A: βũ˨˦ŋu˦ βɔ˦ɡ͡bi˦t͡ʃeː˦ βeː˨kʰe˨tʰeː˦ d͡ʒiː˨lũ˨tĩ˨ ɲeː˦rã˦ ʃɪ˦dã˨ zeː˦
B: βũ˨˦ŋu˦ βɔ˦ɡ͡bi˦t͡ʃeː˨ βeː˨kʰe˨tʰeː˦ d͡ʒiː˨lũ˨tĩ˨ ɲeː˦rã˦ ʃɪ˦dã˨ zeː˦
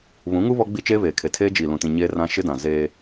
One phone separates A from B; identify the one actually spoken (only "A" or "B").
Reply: A